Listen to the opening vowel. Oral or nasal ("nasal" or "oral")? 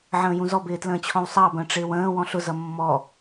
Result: nasal